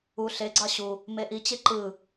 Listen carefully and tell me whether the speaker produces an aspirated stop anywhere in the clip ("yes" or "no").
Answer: no